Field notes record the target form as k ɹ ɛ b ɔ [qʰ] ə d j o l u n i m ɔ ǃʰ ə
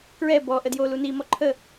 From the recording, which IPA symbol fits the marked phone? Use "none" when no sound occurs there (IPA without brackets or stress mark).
ʔ